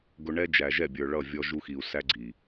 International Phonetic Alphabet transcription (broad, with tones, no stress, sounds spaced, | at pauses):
ɡ ʊ˨ ɳ ɛ˦ d͡ʒ æ˨ ʒ ɛ˦˨ bʲ ə˞˨ ɭ ʌ˦˨ vʲ ɔ˦ ʒ u˦ x i˨ u̯ s æ˦ ɡ͡ǀ i˨